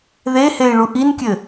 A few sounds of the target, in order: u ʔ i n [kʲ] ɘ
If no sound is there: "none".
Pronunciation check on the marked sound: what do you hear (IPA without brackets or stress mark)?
kʲ